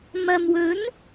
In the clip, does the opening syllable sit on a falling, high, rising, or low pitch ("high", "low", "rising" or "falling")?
low